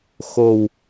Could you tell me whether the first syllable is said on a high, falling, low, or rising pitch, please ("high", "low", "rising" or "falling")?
low